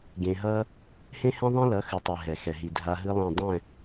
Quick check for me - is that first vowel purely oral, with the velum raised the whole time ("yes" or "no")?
no